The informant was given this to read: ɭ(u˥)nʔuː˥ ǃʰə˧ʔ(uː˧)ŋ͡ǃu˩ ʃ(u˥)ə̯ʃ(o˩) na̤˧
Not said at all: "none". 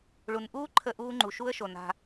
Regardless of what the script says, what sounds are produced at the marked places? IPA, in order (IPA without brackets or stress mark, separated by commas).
u˩, uː˧, u˥, o˩